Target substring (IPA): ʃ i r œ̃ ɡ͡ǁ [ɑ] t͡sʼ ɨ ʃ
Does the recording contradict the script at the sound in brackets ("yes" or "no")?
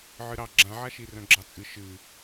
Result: no